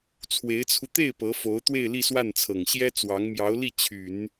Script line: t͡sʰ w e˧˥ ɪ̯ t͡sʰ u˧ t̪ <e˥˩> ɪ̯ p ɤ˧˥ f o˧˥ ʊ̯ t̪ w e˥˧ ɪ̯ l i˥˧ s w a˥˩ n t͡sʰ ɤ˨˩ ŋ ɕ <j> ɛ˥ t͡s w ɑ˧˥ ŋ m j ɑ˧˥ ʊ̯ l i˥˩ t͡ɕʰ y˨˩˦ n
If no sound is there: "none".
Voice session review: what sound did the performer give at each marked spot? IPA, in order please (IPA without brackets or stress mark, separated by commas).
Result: e˥˩, j